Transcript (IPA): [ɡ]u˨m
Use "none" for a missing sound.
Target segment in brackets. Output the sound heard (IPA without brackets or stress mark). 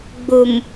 ɡ͡b